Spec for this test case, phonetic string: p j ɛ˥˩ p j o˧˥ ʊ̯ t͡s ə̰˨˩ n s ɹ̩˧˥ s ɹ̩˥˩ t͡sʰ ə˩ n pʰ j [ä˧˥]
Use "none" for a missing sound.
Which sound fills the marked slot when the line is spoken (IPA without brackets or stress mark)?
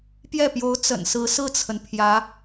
ä˧˥